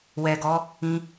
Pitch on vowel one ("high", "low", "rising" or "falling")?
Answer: low